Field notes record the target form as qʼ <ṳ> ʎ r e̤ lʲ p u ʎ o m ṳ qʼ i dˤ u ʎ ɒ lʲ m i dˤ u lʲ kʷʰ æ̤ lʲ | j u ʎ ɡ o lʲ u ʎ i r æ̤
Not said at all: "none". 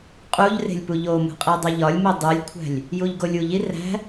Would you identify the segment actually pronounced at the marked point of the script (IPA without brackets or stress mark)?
u